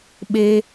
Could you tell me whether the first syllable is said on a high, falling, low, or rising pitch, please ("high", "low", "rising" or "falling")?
high